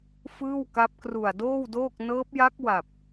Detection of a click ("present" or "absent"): absent